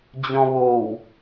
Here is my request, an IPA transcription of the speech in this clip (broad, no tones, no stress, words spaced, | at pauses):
d͡ʑɔ̃βow